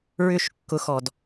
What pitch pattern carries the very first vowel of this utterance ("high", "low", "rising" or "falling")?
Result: falling